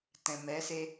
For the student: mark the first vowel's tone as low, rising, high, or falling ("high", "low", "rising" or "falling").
low